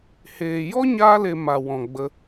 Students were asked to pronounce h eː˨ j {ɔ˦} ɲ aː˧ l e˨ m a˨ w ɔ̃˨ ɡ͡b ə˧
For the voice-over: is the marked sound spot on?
yes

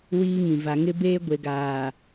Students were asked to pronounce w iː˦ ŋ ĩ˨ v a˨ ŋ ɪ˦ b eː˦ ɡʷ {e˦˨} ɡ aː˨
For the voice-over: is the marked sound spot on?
no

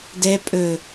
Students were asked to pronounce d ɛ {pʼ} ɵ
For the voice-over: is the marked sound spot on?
yes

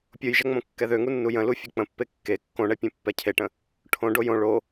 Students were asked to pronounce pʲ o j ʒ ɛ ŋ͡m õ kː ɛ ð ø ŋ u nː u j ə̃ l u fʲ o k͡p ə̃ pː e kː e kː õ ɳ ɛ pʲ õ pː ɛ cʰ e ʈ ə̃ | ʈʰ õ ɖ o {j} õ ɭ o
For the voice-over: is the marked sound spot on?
yes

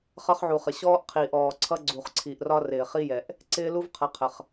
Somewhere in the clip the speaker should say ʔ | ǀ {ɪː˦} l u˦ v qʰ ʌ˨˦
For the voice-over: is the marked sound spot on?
yes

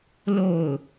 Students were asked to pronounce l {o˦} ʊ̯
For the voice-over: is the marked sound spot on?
no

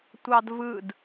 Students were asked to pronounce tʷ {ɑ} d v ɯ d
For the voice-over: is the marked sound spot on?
yes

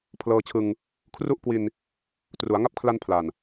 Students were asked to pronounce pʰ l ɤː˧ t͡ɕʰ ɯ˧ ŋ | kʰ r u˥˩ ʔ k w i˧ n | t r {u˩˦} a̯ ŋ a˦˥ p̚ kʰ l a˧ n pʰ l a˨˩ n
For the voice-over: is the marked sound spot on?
yes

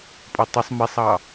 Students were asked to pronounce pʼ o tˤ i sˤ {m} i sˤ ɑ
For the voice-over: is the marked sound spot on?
yes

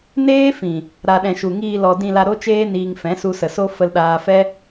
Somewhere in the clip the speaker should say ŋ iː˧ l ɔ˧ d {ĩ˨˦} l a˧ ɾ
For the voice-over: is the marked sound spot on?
no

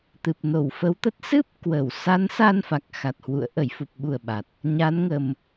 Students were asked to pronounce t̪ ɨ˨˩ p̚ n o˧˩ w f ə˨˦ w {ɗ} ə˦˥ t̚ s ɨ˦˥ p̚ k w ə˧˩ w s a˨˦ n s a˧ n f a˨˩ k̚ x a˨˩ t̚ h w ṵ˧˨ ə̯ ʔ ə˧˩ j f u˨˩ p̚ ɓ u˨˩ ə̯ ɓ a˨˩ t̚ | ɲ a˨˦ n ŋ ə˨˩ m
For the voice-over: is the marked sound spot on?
no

